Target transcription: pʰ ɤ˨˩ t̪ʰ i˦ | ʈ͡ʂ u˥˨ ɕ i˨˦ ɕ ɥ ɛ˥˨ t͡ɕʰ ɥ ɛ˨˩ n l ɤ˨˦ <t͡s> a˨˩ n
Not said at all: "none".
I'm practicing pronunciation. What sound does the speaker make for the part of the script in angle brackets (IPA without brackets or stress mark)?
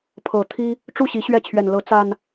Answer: t͡s